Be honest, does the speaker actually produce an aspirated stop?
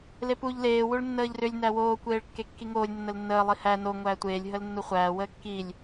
no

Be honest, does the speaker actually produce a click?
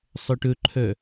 yes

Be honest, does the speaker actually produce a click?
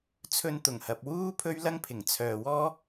no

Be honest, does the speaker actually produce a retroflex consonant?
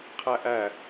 no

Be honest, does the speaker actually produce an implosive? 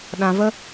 yes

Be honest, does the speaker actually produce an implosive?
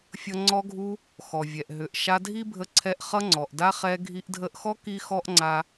no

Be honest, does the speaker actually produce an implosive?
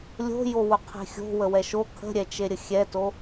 no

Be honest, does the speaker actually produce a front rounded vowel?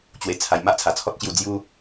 no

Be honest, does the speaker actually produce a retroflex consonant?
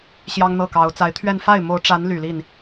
yes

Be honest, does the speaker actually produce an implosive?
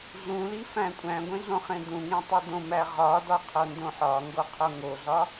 no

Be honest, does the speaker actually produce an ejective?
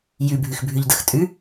yes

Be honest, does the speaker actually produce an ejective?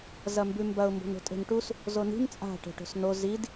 yes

